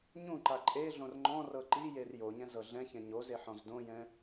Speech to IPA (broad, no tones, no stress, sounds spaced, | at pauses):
ɲ ũ ǃ a ǃʼ e ɮ õ r ŋ͡ǃ ɔ̃ r ɤ ǃ i j e r j o ɲ ɛ̃ z ɤ ɮ ɛ̃ ç ɛ̃ ɲ o z e ħ ɔ̃ z d õ j ɛ̃